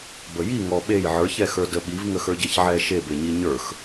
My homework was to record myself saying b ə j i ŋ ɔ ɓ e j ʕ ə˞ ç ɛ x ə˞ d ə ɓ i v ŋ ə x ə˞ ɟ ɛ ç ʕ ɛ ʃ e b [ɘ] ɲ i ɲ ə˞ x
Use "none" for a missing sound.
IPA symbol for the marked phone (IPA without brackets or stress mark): e